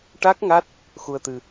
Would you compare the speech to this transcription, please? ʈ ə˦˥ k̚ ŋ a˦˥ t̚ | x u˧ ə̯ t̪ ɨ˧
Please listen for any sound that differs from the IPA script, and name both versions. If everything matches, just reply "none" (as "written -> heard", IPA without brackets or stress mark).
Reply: ə˦˥ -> a˦˥